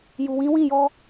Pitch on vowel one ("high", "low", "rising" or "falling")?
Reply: low